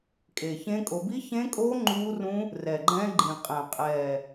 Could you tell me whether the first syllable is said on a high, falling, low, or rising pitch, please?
low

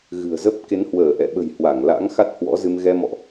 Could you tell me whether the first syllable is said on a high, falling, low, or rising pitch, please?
low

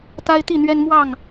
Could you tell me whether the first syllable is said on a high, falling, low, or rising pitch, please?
high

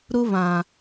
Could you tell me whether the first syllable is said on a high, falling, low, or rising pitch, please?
high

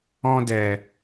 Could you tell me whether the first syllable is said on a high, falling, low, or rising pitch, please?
high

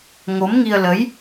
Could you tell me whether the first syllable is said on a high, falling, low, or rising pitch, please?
rising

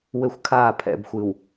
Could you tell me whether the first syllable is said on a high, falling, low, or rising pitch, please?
high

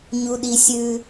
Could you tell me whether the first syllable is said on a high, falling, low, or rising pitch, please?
low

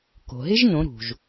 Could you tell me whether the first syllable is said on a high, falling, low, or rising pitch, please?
low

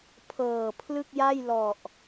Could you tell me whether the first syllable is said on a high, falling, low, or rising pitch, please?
low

